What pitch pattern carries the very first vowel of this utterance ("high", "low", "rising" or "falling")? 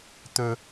low